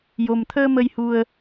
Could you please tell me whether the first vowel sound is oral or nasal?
oral